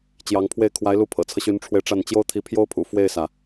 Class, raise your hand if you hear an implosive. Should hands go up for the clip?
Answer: no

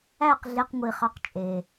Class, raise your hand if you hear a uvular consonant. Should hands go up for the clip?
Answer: yes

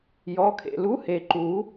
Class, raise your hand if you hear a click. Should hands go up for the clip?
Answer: yes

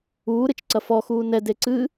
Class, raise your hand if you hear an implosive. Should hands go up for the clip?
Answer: no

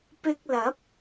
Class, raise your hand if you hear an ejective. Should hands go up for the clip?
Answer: no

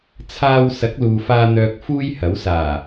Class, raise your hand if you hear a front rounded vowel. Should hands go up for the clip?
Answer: yes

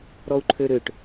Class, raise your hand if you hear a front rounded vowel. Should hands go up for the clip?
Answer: yes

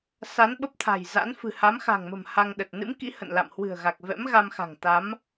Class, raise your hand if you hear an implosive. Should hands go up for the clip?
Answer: yes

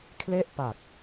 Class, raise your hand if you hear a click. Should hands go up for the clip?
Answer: no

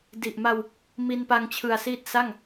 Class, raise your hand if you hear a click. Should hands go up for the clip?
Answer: no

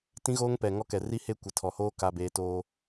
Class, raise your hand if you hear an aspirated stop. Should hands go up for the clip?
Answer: yes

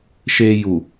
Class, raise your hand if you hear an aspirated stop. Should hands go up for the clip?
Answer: no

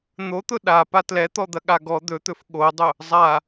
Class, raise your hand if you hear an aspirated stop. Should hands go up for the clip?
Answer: no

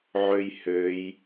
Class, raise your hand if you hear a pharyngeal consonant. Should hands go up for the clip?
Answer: yes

